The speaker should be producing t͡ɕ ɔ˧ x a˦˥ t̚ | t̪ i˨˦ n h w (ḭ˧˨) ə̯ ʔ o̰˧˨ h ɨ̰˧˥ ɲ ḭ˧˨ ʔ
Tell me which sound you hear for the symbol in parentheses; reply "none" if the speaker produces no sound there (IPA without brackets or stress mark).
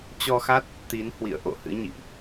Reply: ḭ˧˨